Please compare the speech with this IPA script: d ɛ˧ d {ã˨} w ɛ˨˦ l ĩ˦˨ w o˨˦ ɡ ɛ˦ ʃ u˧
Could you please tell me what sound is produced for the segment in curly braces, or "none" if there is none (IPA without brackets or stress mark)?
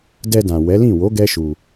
ã˨